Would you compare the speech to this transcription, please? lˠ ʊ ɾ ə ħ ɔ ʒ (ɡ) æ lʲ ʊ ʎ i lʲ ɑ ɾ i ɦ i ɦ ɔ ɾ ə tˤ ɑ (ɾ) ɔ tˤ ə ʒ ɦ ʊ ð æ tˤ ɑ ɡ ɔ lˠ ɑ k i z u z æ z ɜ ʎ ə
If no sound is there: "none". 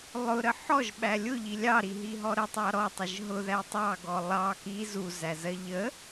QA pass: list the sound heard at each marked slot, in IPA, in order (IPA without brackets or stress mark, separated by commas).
ɓ, ɾ